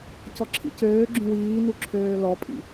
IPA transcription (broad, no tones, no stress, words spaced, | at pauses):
cɔǁʰḭcøːɡ͡ǁũ wiːnu ǁʰøːlɔpʼḭ